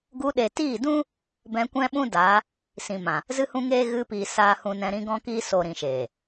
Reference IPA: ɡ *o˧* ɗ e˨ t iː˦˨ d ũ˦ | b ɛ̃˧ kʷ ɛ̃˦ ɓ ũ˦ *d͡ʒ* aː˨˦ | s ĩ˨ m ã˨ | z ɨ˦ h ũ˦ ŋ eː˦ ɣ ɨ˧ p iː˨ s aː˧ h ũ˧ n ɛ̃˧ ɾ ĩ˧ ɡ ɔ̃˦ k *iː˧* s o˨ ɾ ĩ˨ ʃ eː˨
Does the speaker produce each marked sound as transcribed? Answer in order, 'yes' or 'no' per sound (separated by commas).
no, no, no